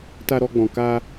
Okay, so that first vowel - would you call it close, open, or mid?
open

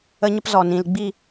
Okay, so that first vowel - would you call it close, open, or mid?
mid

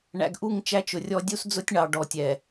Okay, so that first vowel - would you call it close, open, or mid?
open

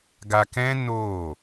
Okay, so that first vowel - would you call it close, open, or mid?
open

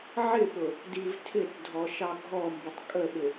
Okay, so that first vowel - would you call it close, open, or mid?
close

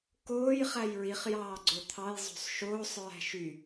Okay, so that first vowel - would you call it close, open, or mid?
mid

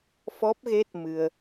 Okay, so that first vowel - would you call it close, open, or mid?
mid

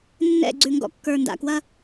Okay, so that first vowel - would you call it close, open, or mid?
mid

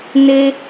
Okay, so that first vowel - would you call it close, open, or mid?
mid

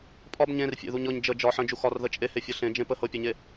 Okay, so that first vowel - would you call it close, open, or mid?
open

